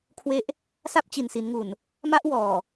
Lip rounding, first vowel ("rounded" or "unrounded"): unrounded